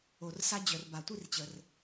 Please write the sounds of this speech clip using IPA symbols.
o˨rsa˦d͡ʑœ˨r ba˨tʷi˦rt͡ɕə˨r

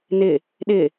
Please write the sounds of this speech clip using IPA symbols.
nɪ | ɗɪ

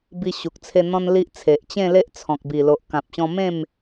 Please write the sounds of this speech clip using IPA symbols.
bi˧ɕu˨k̚t͡sʰe˧ n̪ɔ̃˦nli˦ʔt͡sʰe˨ʔ t͡ɕẽ˥˧le˦ʔt͡sʰɔ̃˨k̚ bi˨˩lo˨ʔkã˨p̚ɕɔ̃˧ mẽ˥˧m

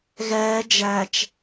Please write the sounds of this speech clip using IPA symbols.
ɣɛː d͡ʒæt͡ʃ

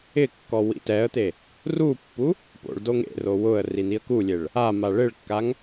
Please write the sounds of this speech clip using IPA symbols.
ɪkːɔ wḭtɛə̯t̪e | rupːu | po̰ɭdoŋ ḛro wʊə̯ rin̪iə̯kulʲeɭ | ama ɭɪɭkːaŋ

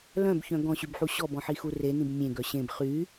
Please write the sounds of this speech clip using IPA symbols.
lœ̃bçœ̃ ɡɔ̃ɕybħu ɕɔbɔ̃ħixu renĩb mʲẽɡœ ɕẽb χy

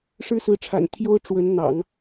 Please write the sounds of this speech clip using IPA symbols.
ʂɻ̩˥sɹ̩˧˥ ʈ͡ʂʰa̰˨˩nt̪ʰjo˥ʊ̯ ʈ͡ʂwə˧˥nn̪ɑ̰˨˩˦ŋ

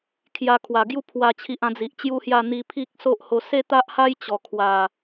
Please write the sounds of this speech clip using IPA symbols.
kʰja˧kʰwa˨˩ɡju˦ pʰwa˥˧t͡ɕʰi˦ʔã˦ d͡zi˨ʔt͡ɕju˦hja˥˧ n̪i˧ pʰi˦k̚ so˦ʔho˧ se˦t̪a˦ʔha˦j t͡ɕɔ˨˩kʰwa˨˩

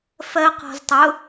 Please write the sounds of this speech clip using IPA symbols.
fɜ qɔ̤ztˤʊ

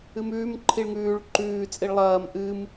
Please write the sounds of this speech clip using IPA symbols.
ɨmʉːm ǃʰiɭŋʉːɭ ǃʉː t͡sʼiɭlˠɐːm ʔɨm

